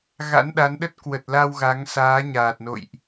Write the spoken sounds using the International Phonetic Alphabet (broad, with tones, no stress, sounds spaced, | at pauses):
ɣ a̰˧˥ n ɗ a˨˦ n ɗ ə˦˥ t̚ k w ə˨˩ t̚ l a˧ w ɣ a˨˦ ŋ s aː˨˦ ɲ aː˨˩ t̚ n o̰˧˨ j ʔ